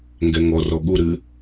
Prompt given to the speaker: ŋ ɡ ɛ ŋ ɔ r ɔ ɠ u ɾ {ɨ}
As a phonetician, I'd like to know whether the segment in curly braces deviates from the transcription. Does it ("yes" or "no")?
no